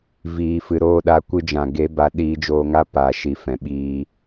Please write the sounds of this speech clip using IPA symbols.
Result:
v iː˨ f ɨ˨ ɾ oː˦˨ ɗ a˨˦ kʷ ɨ˧ d͡ʒ ã˨ ɡ e˨˦ b a˨˦ ɗ iː˧ d͡ʒ oː˧ ŋ a˦ p aː˨ ʃ i˨ f ɛ̃˨ ɓ iː˧

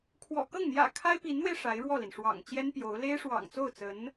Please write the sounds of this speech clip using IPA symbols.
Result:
kʰ w ɔ̰˨˩ k ɤ˥˩ ŋ n̪ j ä̰˨˩ kʰ a˥ ɪ̯ p i˧˥ n n̪ w e˧ ɪ̯ ʂ a˧˥ ɪ̯ ɻ w ɔ˥˩ l i˩ n ʂ w ɑ̰˨˩ ŋ t͡ɕ j ɛ˥ n p j o˧˥ ʊ̯ l e˥ ɪ̯ ʂ w ɑ̰˨˩ ŋ t͡s o˥˩ ʊ̯ t͡s ə˧˥ n

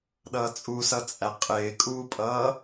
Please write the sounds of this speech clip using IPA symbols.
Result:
ɗ ʌː t͡sʼ u s ʌ t͡sʼ æ qʼ ɪː kʼ uː pʼ ʌː

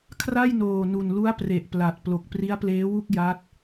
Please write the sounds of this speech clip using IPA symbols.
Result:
kʰ r a˥˩ j n oː˨˩ n u˨˩ n l u˦˥ a̯ p r e˨˩ ʔ p l a˨˩ t̚ p l o˨˩ k̚ p r i˦˥ a̯ p l eː˦˥ w u˥˩ k̚ j a˦˥ t̚

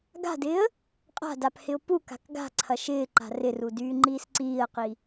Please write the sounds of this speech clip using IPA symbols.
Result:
ɡ a̤ d ɪː ə̯ | qʼ a̤ d a p h ɪ ʊ̯ p u k a̤ k ɡ a̤ ǀʰ ɐ ʃ ɪː ǃ a̤ r ɪ r u d yː ŋ͡ǃ iː s ǀ iː ə̯ q i

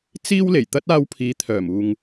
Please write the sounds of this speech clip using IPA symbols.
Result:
t͡s iː˥ w l e˨˩ j t̪ ɐ˥ t̚ aː˧ w pʰ iː˨˧ t̪ʰ œː˨˩ m uː˨ ŋ

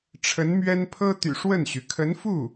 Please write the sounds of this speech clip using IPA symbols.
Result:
ʈ͡ʂʰ ə˧˥ n m ɥ ɛ˥ n pʰ ɤ˥ t̪ y̰˨˩ ʂ w ə˥˩ n ɕ y˩ kʰ ə˧˥ n f u˥˩

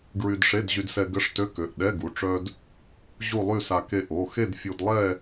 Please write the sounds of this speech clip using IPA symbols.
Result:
ɡ ɹ y˧ d ʂ e˧˥˧ d ʑ y˧ d s ɛ˧ ɡ ə˧˥˧ ʂ t ø˧˥˧ k ø˩˧˩ ʔ ɗ ɛ˧˥˧ ɡ u˩˧˩ ʈ͡ʂ œ˧ d | ʑ u˥˧ lˠ y˥˧ s a˧ k e˧ ʔ o˩˧˩ x e˥˧ d fʲ u˧ d lˠ ɛ˥˧

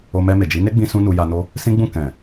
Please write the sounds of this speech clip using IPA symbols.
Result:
o˧ m ɛ˧ m e˨ d͡ʒ i˨˦ n e˦ ɡ͡b ĩ˧ s ũ˦ n u˧ j a˧ n o˦ | s ĩ˦ ɡ͡b ũ˦˨ k ɛ̃˨

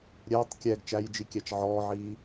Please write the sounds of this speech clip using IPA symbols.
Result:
ɾʲ ɛː tˤ kʲ ɛ ɡ t͡ʃ æ j d͡ʒ i kʲ æ t͡ʃ ʕ ɔː ʕ iː

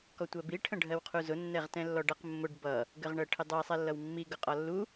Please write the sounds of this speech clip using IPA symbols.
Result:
k ɔ tʷ ɜ b i ʈʰ ə̃ ɖʱ ɜ w qʰ u z ʊ nː ɛ ʁ t ɛ̃ lː ɔ ɖ ʌ q mː ʊ ɖ b ʌ | ɡ ə ʁ ɳ ɜ ʈʰ ɪ dˤ ʊ ɐ̯ sˤ ɛ lː ʌ w mː i ɡ ʊ qʼ ɒ lː u

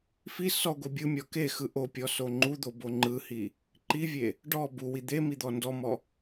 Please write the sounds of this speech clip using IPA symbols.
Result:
f i s ɔ ɡʷ e bʲ ɯ mʲ ɔ k e x ɯ ʔ o pʲ ɔ s o ŋ͡ǃ u d̪ o b o ŋ͡ǃ ɯ h i | ǃ i vʲ e | ɖ ɔ b u w i d̪ e m i d̪ ɔ n d ɔ m ɔ

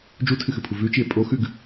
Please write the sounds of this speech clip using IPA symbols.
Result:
d͡ʒ u tʰ ɨ x ɨ pʰ u v ʉ t͡ʃ i e̯ pʼ o x ʉ ɡ

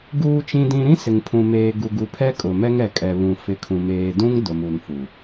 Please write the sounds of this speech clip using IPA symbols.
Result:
ɡ uː˨ t͡ʃ ĩ˨ d ĩ˨ ɾ ĩ˦ s ɪ˨ ŋ pʰ ũ˨ m eː˨ ɡ u˨ ɡ u˨ pʰ ɛ˦ kʼ ʊ˨ m ɛ˦ ŋ ɛ˨ kʼ ɛ˨ β ũ˨ f ɪ˨ kʰ ũ˨ m eː˨ d ũ˦ ŋ d ʊ˨ m u˨ n f u˨

